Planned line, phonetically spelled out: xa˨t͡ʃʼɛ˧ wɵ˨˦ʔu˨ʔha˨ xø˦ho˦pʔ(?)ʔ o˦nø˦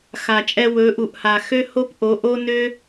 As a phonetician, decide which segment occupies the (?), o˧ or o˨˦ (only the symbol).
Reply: o˨˦